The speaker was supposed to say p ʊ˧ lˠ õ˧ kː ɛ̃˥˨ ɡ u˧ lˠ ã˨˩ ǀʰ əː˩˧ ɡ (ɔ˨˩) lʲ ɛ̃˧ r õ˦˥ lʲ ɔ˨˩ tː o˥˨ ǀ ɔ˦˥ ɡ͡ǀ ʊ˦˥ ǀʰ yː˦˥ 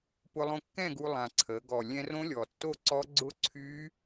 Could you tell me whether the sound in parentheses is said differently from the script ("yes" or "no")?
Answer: no